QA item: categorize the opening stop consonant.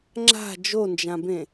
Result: click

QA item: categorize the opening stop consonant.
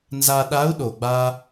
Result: implosive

